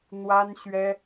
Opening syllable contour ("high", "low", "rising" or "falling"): high